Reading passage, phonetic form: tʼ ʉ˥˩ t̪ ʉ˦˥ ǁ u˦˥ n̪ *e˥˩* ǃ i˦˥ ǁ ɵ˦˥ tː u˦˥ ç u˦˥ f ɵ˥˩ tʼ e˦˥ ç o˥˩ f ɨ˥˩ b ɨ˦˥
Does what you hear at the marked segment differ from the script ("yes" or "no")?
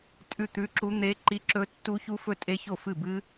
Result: yes